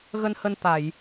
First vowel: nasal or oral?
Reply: oral